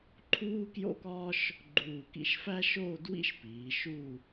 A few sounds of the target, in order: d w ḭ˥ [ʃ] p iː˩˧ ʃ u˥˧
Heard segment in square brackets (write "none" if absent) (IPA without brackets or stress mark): ʃ